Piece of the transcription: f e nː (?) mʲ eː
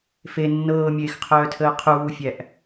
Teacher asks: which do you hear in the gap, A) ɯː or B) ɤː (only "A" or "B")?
B